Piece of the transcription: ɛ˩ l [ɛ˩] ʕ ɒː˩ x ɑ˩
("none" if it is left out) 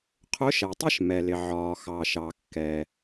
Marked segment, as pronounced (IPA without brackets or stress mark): ɪ˩